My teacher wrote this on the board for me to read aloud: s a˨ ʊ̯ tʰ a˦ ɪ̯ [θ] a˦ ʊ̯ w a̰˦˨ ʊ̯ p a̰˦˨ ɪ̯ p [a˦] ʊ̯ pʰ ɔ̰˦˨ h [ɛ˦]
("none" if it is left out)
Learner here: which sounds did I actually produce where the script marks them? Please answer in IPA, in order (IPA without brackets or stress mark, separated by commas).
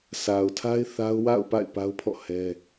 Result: θ, a˦, ɛ˦